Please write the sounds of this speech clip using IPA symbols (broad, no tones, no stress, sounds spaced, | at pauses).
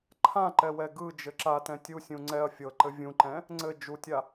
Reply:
ǃʰ ã ǃ ɛ w ɛ ɡ ɯ d͡ʒ ɘ ǁ a t ɛ̃ tʲ u sʲ ũ ŋ͡ǀ ɛ ɐ̯ fʲ ɤ ǃ ɘ vʲ ũ ǃ ɛ̃ | ŋ͡ǀ ɘ d͡ʒ u tʲ a